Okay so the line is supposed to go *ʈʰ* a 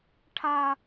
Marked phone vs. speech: correct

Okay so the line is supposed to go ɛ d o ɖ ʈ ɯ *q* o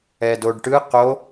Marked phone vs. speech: correct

